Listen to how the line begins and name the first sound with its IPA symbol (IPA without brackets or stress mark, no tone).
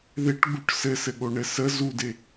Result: ð